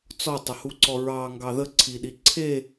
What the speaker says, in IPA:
t͡s ɔ tˤ ə h u ǀ ɔ ɹ ɑ ŋ ɡ ɑ ð ə ǀʰ i ɗ i ǀʰ e

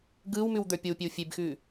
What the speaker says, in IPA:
ɡ ɯː w m ʉ w d̪ ə˞ pʲ o w pʲ e w fʲ e b x ʉː

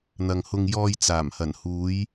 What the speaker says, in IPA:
n̪ ɐ˨ ŋ h ʊ˧ ŋ j ɔː˧ j t͡s aː˨˩ m h ɐ˨˩ n h uː˨˧ j

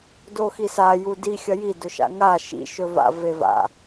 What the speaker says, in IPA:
d o x i s a j u d i xʲ ɐ j i d ɵ ʃ a̰ ŋ a ʃ ḭ ʃ ɵ v a̰ v e v a̰

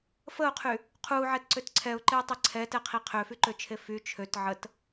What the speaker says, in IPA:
f ə ʊ̯ qʰ y | qʰ u ʕ ɛ t ǀ ø t ǀʰ ɛ ʊ̯ ǃ e ʊ̯ tˤ e ǀʰ ɛ t ɛ qʰ i qʰ ø f y ǃ ø t͡ʃʰ e f y t͡ʃʰ ø t ʕ ə t

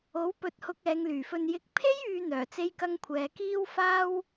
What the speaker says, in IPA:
o˨˥ w p ɵ˧ t̚ h ʊ˧ k̚ ɛː˨˧ ŋ l yː˨˩ f ɵ˧ n j ɪ˨ k̚ pʰ e˥ j yː˨ n̪ œː˨˩ t͡s e˥ j k ɐ˥ ŋ kʷʰ ɛː˨˧ k iː˥ w f aː˥ w

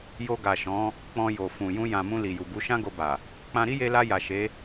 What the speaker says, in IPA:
j o˧ ɡ a˨ ʃ ɔ̃˨˦ | k͡p ɔ̃˧ j o˨ f ũ˨ j ũ˧ j ã˨ m ũ˧ l i˨ j u˨ b u˨˦ ʃ ã˦ ɡ o˧ b a˨ | k͡p ã˧ ɾ i˦ j e˧ l a˧ j a˨ ʃ e˨˦

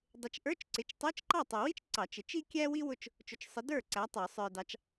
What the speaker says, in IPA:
dˤ ɪ˨˦ t͡ʃ ʔ ə˞˧˥˧ t͡ʃ ǀ ɪ˨˦ t͡ʃ tˤ ə˞˧˥˧ t͡ʃ ǃ ɑ˥˩ tˤ ə˨ w i˥ t͡ʃ ǀ ɑ˨˩˦ t͡ʃ ɪ˨˩˦ t͡ʃ i˥ kʲ æ˥ w i˥ w ʊ˥˩ t͡ʃ | t͡ʃ ʊ˨ t͡ʃ sˤ ə˨˦ d ə˞˥˩ ǀ æ˨˦ tˤ ə˞˨˩˦ sˤ ə˞˨ d ɑ˨˦ t͡ʃ

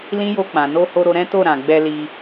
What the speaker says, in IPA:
l ĩ˦ j o˧ k͡p ã˨ n o˧ h o˧ ɾ o˧ ɾ ɛ̃˦ t o˦˨ ɾ ã˨ ɡ͡b ɛ˧ l i˧

